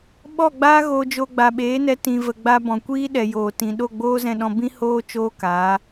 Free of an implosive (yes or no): no